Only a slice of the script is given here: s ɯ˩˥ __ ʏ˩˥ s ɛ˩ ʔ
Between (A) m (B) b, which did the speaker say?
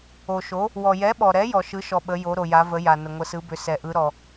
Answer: B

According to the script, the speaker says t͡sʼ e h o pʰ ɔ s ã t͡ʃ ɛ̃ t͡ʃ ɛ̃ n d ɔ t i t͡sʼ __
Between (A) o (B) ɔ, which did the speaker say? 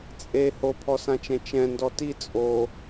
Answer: A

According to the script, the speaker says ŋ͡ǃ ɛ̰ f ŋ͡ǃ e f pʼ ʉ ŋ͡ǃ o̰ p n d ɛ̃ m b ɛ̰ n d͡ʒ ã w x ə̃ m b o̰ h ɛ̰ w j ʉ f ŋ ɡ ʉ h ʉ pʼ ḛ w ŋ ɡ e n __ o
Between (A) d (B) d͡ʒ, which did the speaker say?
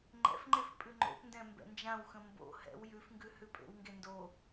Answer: A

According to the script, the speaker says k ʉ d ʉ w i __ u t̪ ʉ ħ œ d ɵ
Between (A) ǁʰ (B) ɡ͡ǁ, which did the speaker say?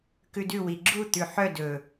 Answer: B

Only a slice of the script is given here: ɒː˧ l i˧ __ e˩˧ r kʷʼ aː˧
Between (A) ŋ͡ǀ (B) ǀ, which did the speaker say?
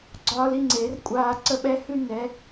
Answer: A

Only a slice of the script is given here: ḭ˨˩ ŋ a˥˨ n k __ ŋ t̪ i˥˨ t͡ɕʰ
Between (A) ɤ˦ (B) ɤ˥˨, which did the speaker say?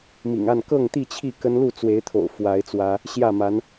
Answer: B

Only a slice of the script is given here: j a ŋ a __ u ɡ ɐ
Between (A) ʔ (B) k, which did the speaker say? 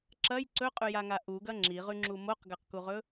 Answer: A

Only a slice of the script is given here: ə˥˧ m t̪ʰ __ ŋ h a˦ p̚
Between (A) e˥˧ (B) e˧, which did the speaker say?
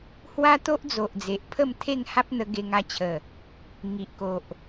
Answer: A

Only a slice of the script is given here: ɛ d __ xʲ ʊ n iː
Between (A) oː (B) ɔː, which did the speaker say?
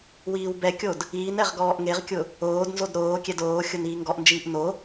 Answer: A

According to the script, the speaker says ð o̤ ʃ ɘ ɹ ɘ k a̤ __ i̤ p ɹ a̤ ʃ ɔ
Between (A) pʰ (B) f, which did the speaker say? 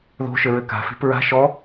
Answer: B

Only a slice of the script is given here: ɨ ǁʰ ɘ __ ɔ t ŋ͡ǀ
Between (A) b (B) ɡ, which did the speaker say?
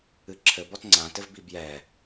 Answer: A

